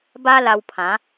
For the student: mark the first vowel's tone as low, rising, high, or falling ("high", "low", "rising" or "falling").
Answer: high